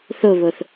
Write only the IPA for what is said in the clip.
θoβoθ

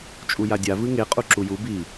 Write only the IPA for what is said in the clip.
t͡ʃʼujadʲa vɨŋe qʼuǁuju bi

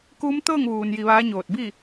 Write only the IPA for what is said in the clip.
kuː˧˥mt̪ɤː˥˨ŋʋuː˩n ji˧ʋaː˧˥ɲoː˧˩t̚ bi˥˨

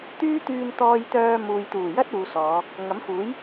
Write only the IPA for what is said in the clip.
t̪yː˥t̪yː˧n t̪ɔː˧jt̪œː˧ muː˨jt̪uː˨˩jɐ˥t̚ uː˨˧sɔː˨˧ | ŋɐ˨˥mfuː˨˥j

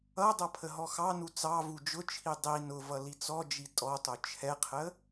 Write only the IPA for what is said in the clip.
ʌdˤʌ pʰəɦɔxɑnu t͡sɑvu d͡ʒʊt͡ʃʰi dˤi nʊvʌ lit͡sɔd͡ʒi tʼɔtˤʊ t͡ʃʰɛqʰə

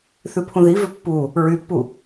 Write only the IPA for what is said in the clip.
θʉpʰũði vʏpːu | ɹypːu

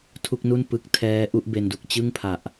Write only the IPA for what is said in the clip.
tʰu˥˩k̚nu˥˩n pɯ˦˥k̚ tʰɛː˦˥ ʔu˥˩ʔbe˧ndu˨˩k̚ t͡ɕɯ˥˩ŋpʰa˨˩ʔ

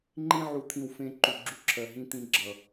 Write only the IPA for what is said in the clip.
ŋ͡ǃĩ˦ʕu˨t̪ʰĩ˨w fẽ˦ ǃu˨ɡ͡ǁu˦ǁʰɜ˨ ɦĩ˦t̪ĩ˦ɡ͡ǁʌ˨

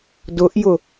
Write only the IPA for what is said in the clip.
dʊʔjʊ

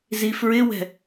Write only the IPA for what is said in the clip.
zifɹɪwɛ̤

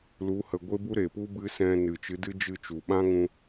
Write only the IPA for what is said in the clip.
lu˨˦ hə˧ ɡʷe˦bu˦ ɾe˨pu˦ bɨ˦ sɛ̃˧nɨ˨ t͡ʃɨ˨˦dɨ˦ d͡ʒɨ˦˨t͡ʃu˨ ɓã˦ŋũ˧

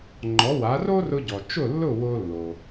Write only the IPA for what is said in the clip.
ŋ͡ǃɔ˩˥wa˩˥ ro˥rʊ˧ɟɔ˩ t͡ʃʊ˥˩lːʊ˥˩ wo˧lːo˩

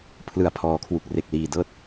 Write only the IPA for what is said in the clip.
pʰlɯ˨˩a̯pʰɔː˩˦kʰwu˨˩k̚ re˨˩k̚liː˨˩dɤː˥˩t̚

